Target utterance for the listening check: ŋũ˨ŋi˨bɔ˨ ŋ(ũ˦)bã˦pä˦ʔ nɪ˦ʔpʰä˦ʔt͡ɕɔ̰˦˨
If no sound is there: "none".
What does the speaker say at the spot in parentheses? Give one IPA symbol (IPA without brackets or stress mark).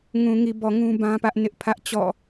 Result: ũ˦